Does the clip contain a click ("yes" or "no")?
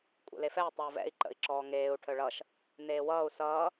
yes